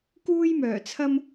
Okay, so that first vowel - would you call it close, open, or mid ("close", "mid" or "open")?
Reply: close